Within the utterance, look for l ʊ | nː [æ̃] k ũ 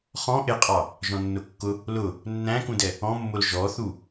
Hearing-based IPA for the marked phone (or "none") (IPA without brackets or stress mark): æ̃